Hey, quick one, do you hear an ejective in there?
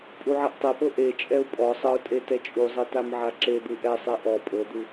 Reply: yes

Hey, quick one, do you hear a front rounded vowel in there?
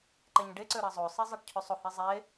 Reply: yes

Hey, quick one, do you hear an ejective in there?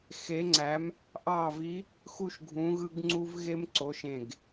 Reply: no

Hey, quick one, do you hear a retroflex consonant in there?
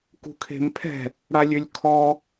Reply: yes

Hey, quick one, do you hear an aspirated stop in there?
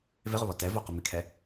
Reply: yes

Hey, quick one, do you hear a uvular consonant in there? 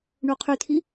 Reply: yes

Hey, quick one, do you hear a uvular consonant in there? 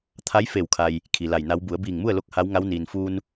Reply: no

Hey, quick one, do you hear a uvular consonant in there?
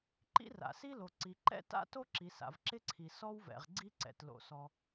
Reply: yes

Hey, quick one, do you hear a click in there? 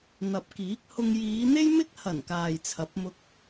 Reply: no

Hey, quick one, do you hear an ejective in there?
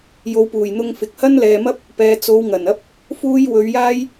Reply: no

